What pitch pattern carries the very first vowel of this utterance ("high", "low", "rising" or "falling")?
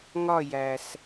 falling